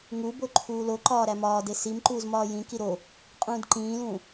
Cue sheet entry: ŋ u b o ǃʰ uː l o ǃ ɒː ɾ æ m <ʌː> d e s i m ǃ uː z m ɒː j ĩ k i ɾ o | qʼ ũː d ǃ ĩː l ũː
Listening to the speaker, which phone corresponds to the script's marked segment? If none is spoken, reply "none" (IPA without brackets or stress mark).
ɒː